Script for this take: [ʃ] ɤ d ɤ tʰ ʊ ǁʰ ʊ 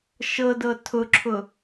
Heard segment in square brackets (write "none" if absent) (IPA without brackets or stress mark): ʃ